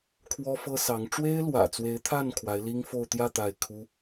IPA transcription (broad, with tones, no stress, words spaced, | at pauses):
kʰwɔ˥fɤ˥sɑ˧˥ŋ ʈ͡ʂwe˥ɪ̯lwä̰˨˩t͡swe˧˥ɪ̯t̪ʰa˥˩n kʰwa˧˥ɪ̯li˥ŋfo˥˧ʊ̯ t̪jä˥˧ t̪a˥˩ɪ̯ kʰu˥